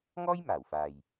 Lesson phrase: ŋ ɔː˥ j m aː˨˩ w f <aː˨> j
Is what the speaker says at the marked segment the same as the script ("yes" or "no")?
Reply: yes